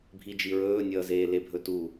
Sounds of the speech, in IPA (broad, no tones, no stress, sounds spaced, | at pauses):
bʱ i d͡ʒ i ɹ ɵː nʲ ʌː z eː l e bʱ ɵ t u